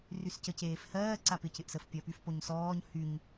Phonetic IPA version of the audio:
r y s c ə c eː f h ɜː ǀ a p ɪ c ɪ ʔ s ə f pʲ ɜ p y f p o ɲ s ɔː ɲ h y ɲ

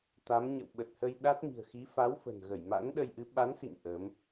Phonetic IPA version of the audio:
t̪ a˨˦ m ɲ ə̰˧˨ w ɓ ə˨˩ t̚ h ə˧ j ɗ a˦˥ t̚ m i̤˨˩ ə̯ x i˨˦ f a˨˦ w f ə̤˨˩ n ɣ ə˧˩ j m a̰˧˥ n ɗ ə˧ j ʔ ɨ˨˦ ɓ a˨˦ n s ḭ˧˨ ŋ ʔ ə˨˦ m

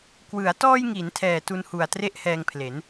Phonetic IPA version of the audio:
k w ɯ˩˦ a̯ t ɔː˧ j ŋ i˩˦ n tʰ ɛː˨˩ t u˧ n h u˨˩ a̯ t r e˥˩ ʔ h ɛː˧ ŋ pʰ l e˩˦ n

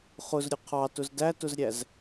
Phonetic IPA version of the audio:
χ ʊ z ɾʲ ʊ qʰ ɑ t ʊ z d æ t ʊ z ɾʲ æ z

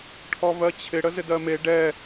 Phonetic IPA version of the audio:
ʈʰ ɔ v ɜ t͡ɕʰ ɪ ɽ ə z ɪ d ɜ m e ɖ ɛ

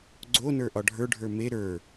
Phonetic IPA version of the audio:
ɡ͡ǀ o n ə˞ ʔ ɒ ɖʱ ə˞ ɖʱ ə˞ m e ɾ ə˞

